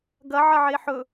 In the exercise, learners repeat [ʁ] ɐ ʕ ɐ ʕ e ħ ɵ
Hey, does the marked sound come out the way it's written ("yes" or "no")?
no